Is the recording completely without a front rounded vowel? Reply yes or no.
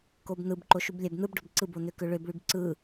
no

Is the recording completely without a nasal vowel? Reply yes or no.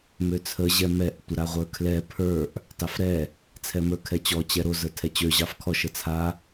yes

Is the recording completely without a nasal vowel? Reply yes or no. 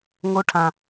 no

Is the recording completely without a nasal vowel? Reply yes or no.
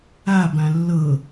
no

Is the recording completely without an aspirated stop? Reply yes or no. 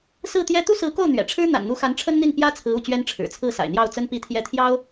no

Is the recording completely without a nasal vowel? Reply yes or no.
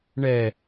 yes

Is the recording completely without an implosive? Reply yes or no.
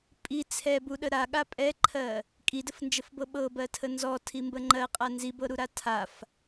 no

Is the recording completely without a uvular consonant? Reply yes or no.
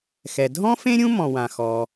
yes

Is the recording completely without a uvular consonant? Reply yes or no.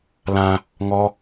yes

